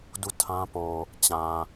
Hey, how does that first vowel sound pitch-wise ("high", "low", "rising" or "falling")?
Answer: falling